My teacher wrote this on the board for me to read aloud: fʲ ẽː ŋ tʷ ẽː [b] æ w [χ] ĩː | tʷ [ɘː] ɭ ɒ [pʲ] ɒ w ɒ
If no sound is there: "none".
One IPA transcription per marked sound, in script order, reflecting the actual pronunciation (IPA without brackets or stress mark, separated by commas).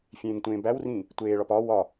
b, r, eː, p